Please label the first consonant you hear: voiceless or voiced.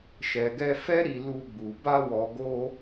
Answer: voiceless